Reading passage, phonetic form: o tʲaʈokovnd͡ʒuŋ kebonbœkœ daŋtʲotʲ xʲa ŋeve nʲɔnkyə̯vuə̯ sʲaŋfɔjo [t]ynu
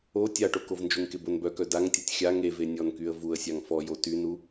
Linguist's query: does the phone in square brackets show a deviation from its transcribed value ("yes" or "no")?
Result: no